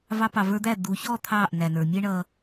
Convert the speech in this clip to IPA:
v ɑ˧ p ɑ˨ v ə˞˧ d̪ æ˦˨ d̪ u˨ ç ɔ˦˨ t̪ʰ ɑ˦˨ ʔ n æ˨ n ə˞˨ mʲ ɛ˦ ɳ ʌ˧

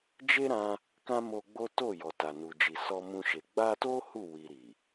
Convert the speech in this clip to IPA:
d͡ʒ e˦ ɾ ã˧ | k ã˦ m o˧ ɡ͡b o˦ t o˦˨ j ɔ˨ t a˨ n u˨ d͡ʒ i˨ s ɔ˧ m ũ˧ ʃ e˨ ɡ͡b a˧ t o˦ h u˦˨ w i˨ ɾ i˨

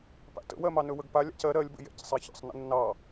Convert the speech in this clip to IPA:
p a̰ t ə̰ w ɜ m ɑ n ɵ w ə ɡ p a lʲ a̰ c ɜ ɾ ɜ lʲ b ə̰ j ɛ̰ c sˤ ɛ ç ə̰ sˤ n ə̰ nː ɑ

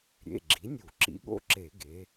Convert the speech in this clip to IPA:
ɾʲ ḛ˩˧˩ ɡ͡ǁ i˩˥ nʲ u˧˩˧ ǁ ḭ˩˥ ɠ o̰˦ ǁ e˧˩˧ ɡ e˩˥

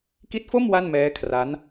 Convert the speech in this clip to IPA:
k i˦˥ t̚ f o˥˩ m w a˥˩ n m ɛː˦˥ kʰ r a˦˥ n

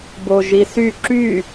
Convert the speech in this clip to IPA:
b o ʒ i s y ǁ y

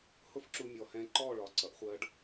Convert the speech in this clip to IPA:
h ʊ˦ f ǁ u˧ mʲ ɔ˨ h ɛ̃˧ ǃ ɔ˦˨ ɭ ɒ˨ ǀ ʌ˨ ʔ χʷ ɜ˧ ɖ

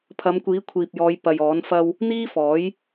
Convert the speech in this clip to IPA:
pʰ ɐ˨˧ m kʷ iː˨˥ kʷʰ iː˨ p̚ j ɔː˨˧ j p ɐ˨ j ɔː˨˥ n f ɐ˥ w | n̪ iː˥ f ɔː˨˥ j

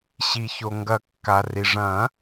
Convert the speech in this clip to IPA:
ɕ i˩ ç o˩ ŋ ɡ ɐ˨˩˦ kː a˩ r i˩ ʐ ɐ̃˨˩˦

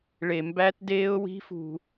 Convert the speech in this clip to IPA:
ɭ e˨ m b æ˦˥ t d eː˦˥ ʊ̯ w i̤˦˥ f ṳ˨

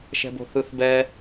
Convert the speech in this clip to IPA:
ʃ ɛ̤ b o̤ θ ɯ θ b ɛ

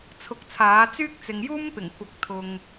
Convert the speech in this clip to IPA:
t͡sʰ ʊ˧ k̚ t͡sʰ aː˨˥ t͡s yː˥ k̚ t͡s ɪ˨ ŋ j uː˥ m p ɪ˨˩ ŋ kʷ ɐ˨˥ k̚ t̪ʰ ʊ˨ ŋ

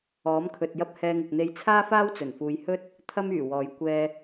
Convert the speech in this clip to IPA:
ɔː˨˥ m kʰ ɵ˨ t̚ j ɐ˥ p̚ h ɛː˧ ŋ ʊ˨ k̚ n̪ e˧ j t͡sʰ aː˥ f aː˥ w t͡s ɵ˨˩ n f uː˨˧ j h ɵ˥ t̚ | t̪ʰ ɐ˥ m yː˨˩ w ɔː˨˧ j kʷ ɛː˧

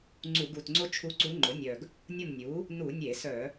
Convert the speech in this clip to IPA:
ŋ͡ǀ u˧˩˧ ɡ u˨˩ t ŋ͡ǀ o˥ t͡ʃʰ u˧˥ ǀ u˧˥ ŋ͡ǃ ʊ˩˥ nʲ œ˨˩ ɡ | nʲ ʊ˦˨ m nʲ u˩˥ | n u˧˩˧ nʲ e˧˩˧ s œ˧˩˧

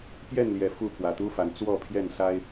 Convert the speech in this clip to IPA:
p j ɛ˥˨ n l j ɛ˨˩ f u˥˨ pʰ w ä˨˩ t̪ u˦ f a˨˦ n t͡s w ɔ˥˨ pʰ j ɛ˥˨ n s a˦ ɪ̯

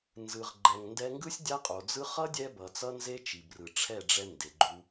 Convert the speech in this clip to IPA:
n z ɯ˨ ʁ ɡ͡ǃ ɛ˨ ŋ n d ɛ˧ ŋ ɡ ɯ˦ sʲ dʲ a˦ qʼ o˨ d͡z ɯ˦ χ ʌ˦ dʲ ɛ˧ b ʌ˨ t͡s ʌ˦ n z e˦ t͡ʃ i˨ b r ɯ˨ ʈ͡ʂʰ ɛ˦˨ ɖ͡ʐ ɛ˧ n d e˨ ɡ͡ǃ u˧

